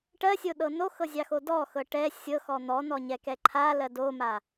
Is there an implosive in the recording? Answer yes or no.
yes